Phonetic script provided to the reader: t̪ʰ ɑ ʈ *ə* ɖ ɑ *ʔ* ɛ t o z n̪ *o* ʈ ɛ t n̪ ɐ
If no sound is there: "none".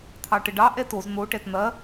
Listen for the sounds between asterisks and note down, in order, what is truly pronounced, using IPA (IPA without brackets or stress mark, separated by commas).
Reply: ə, ʔ, o